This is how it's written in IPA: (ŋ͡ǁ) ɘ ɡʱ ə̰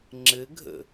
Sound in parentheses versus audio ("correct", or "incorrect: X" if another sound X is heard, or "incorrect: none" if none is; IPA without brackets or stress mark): correct